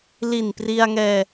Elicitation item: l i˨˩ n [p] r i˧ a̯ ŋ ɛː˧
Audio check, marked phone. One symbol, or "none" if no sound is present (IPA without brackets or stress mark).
p